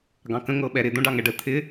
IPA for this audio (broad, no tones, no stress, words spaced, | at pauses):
ɡɑ̃kə̃ ŋɤɓɛɾɪ d̪õɖɑŋɛɖə t̪ʰɪ